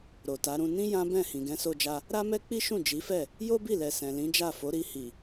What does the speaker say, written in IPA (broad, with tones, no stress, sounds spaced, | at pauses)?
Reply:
ɾ o˨ t a˨˦ ɾ ũ˧ n ĩ˦ j ã˦ b ɛ̃˦˨ h ĩ˨ ɡ ɛ̃˨˦ s o˧ d͡ʒ a˧ | ɾ a˦ m ɛ˦ k͡p i˦ ʃ ũ˦˨ d͡ʒ i˨˦ f ɛ˦˨ | j o˦ b i˦˨ l ɛ˨ s ɛ̃˨ l ĩ˨˦ d͡ʒ a˦˨ f o˨˦ ɾ i˧ h i˨